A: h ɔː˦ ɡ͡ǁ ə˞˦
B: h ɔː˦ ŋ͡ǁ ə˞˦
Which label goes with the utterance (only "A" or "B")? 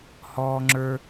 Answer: B